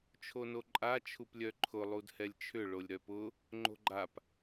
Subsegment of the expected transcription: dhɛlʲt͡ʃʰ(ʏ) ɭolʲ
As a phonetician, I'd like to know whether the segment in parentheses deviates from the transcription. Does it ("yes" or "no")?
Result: no